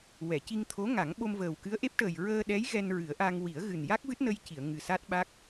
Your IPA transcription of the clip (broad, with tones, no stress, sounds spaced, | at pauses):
w ɛ˨˩˨ c i˧ ŋ t̪ʰ o˧˥ ŋ a˨˩˦ ŋ ɓ o˧ m v əː˨˩ w k ɨ˧˥ ə̯ ʔ e˦˥ p̚ ʈ əː˨˩ j ɹ əː˧ ɗ ɛ˧˥ j ɣ ɛ˧ n ɹ ɨ˨˩˦ ə̯ ʔ a˧ ŋ w i˨˩˦ ə̯ ɣ ɨ˨˩ n j a˦˥ k̚ v ɨ˦˥ t̚ n ə˧ j c i˨˩˨ ə̯ ŋ ɨ˨˩ s a˦˥ t̚ ɓ a˦˥ k̚